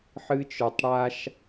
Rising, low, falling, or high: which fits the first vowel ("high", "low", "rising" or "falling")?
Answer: high